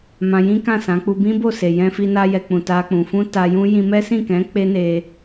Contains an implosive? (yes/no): no